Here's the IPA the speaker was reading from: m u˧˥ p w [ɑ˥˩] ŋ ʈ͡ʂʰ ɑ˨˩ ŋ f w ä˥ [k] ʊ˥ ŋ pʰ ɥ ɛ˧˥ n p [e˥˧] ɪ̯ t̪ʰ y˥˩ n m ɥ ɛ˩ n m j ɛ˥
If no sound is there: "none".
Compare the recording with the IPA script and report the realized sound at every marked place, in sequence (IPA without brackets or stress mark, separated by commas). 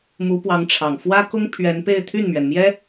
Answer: ɑ˧˥, k, e˥˧